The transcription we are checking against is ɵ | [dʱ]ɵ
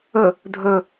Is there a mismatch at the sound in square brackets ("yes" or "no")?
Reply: no